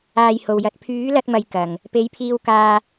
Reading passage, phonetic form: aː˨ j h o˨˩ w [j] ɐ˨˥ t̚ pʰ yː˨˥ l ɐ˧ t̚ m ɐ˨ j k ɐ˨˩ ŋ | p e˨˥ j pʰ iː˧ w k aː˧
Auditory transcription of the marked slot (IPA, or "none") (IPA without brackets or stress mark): j